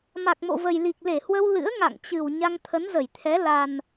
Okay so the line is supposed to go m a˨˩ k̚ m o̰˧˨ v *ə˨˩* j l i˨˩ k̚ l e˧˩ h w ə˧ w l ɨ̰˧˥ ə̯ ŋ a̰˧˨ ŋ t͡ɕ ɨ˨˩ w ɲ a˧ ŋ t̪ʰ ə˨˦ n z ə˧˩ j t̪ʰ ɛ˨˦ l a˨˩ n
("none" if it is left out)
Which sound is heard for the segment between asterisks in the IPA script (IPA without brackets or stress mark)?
ə˨˩